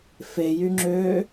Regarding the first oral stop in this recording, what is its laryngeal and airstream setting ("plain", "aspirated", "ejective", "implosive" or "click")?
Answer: click